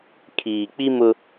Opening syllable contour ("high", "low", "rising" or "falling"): low